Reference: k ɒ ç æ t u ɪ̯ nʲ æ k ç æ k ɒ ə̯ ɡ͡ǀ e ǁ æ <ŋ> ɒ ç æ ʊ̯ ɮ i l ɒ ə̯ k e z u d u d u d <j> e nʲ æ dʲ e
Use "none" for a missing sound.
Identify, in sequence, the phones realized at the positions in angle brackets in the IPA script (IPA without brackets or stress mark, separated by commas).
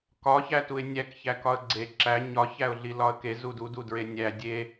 ɲ, ɹ